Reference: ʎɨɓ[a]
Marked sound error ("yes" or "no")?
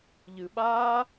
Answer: yes